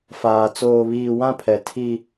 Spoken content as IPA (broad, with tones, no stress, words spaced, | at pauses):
faː˨ t͡soː˨βiː˨ wã˦pʰɛ˨ tʰi˦